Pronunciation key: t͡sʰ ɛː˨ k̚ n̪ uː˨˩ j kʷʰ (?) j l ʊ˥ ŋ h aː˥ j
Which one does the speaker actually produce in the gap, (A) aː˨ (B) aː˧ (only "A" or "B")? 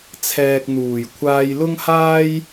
B